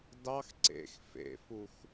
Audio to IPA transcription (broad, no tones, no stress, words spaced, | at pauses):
dɑx ǀḛx fḛfux